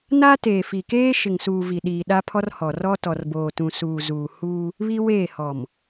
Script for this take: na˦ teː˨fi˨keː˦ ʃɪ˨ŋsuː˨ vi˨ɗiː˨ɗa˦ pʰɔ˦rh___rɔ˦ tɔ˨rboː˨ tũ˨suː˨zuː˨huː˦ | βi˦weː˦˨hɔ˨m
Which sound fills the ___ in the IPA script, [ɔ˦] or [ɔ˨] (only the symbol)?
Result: ɔ˨